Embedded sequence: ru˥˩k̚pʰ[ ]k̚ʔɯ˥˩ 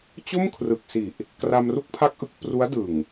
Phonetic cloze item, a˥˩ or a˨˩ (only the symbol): a˥˩